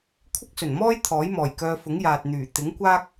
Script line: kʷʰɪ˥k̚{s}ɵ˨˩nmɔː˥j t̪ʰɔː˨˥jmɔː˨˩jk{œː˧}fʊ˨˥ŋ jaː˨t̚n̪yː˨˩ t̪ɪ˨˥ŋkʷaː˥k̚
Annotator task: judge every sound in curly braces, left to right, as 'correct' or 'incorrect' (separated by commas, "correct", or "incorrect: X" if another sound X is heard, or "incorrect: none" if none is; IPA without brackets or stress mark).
correct, correct